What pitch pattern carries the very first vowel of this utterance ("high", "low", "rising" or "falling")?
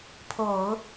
low